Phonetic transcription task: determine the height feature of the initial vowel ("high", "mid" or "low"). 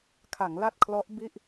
low